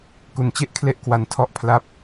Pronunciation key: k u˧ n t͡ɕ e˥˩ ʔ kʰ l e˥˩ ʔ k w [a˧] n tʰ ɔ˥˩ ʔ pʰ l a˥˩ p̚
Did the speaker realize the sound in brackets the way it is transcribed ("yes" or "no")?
yes